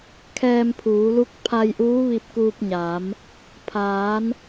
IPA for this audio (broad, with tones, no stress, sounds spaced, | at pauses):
kʰ ɛː˧ m pʰ uː˩˧ l u˧˥ k̚ pʰ a˧ j ʔ uː˧˥ ʋ i˧ p̚ k uː˧ p̚ ɲ aː˩˧ m | pʰ aː˩˧ n